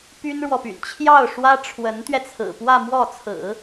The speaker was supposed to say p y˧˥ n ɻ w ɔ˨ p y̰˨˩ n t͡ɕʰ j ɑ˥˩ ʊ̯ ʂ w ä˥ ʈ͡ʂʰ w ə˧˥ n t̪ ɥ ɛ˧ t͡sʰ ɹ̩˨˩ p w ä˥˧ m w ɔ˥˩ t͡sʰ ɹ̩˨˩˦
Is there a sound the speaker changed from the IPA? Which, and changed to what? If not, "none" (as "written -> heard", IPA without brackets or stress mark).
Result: y˧˥ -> y˥